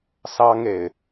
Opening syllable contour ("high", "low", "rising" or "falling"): high